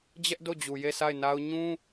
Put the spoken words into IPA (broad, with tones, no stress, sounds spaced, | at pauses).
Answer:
d͡ʑ ɛ˦ ʔ d o˦˨ d͡ʑ u˨ j e˦˨ sʰ a˦˨ ɪ̯ n a˦ ʊ̯ ɲ ũ˦